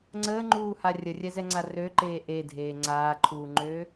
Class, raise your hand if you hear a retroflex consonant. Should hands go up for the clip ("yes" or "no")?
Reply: no